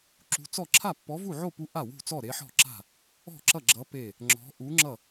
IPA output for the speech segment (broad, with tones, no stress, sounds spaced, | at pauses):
ǁ ṳ˧˥ t͡s ɔ˥˨ ǁʰ a˥˨ pː ɔ˧˥ v u˥˨ ʕ o˥˨ p u˧˥ ʔ a˥˨ w ṳ˥˨ t͡s ɔ˥˨ ɾ e˧˥ ħ ɔ̤˥˨ ǁ a̤˥˨ | ɔ̤˥˨ ǁ ʌ˥˨ ɡ͡ǁ ʌ˧˥ p e˥˨ | ŋ͡ǁ ɔ̤˧˥ ʔ u˧˥ ŋ͡ǁ ʌ˥˨